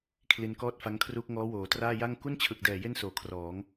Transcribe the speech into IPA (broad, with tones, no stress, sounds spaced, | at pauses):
kʰ l i˧ n k ɔː˥˩ t̚ f a˦˥ ŋ kʰ r u˦˥ k̚ ŋ ɔː˦˥ w oː˩˦ t r aː˥˩ j a˥˩ ŋ k u˥˩ n t͡ɕʰ ɯ˨˩ k̚ d ɛː˨˩ j e˥˩ n s oː˨˩ kʰ r ɔː˩˦ ŋ